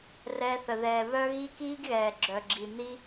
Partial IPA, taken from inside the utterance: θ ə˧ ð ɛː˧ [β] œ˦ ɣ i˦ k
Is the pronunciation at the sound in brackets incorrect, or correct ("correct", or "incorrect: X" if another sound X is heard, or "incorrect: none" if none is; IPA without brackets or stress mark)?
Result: correct